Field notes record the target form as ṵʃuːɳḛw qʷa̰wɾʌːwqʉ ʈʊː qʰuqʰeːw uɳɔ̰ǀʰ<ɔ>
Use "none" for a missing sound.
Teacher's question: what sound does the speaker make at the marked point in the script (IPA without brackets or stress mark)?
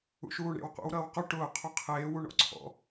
ɔ̰